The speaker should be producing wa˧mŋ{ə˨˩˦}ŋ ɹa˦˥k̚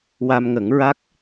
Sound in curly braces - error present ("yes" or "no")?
no